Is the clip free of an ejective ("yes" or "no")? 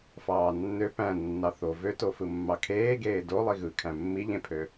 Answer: yes